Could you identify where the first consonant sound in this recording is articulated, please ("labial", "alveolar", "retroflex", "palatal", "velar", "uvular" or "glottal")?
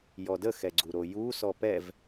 palatal